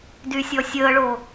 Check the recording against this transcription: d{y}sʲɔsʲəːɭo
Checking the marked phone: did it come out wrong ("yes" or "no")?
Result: no